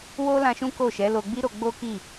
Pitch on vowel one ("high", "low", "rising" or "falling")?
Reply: high